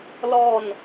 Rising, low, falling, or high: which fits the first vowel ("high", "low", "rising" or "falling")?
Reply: falling